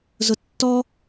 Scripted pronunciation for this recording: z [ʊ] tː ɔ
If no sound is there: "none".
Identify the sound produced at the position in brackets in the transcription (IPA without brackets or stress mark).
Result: ʊ